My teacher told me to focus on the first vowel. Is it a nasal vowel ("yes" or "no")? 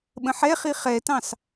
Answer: yes